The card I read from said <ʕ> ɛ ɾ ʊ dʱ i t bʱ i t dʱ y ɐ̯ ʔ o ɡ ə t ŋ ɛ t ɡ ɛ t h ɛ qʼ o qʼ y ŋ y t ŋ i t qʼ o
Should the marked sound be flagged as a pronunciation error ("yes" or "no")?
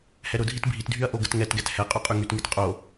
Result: yes